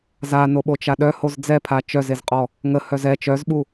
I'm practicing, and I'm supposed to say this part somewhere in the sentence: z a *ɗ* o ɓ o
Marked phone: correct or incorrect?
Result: incorrect